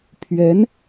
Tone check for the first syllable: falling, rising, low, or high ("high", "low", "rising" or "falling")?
rising